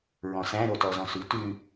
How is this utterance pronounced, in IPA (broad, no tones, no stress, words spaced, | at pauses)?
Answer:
ɹɔ̃sæ̃ ɾotɔzɔ̃sʉ tʉ